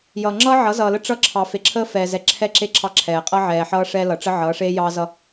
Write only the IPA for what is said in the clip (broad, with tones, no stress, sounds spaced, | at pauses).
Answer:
j ʌː˨ ŋ͡ǁ ʌː˦ ʕ ʌ˨˦ z ʌː˨ l ə˦ ʈ͡ʂ ʌ˦ ǁʰ ɑ˨ f e˨˦ ǁʰ əː˦ f ɛː˨ z ɛ˨ ǁʰ ɛ˦˨ ǁ e˦˨ ǁʰ ɑ˦ ǁʰ ɛː˨ qʼ ʌ˦ ʕ ɛː˨ ħ ʌː˦ ʂ ɛ˦ l ʌ˨ ʈ͡ʂ ə˦ ʕ ʌː˨˦ ʂ eː˦ j ɑː˦ z ʌ˦